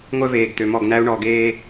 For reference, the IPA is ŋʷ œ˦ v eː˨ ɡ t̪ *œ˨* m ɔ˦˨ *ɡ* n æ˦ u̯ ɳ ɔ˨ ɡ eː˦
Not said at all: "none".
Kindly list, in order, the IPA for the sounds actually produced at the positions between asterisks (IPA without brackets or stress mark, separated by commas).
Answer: ø˨, ɡ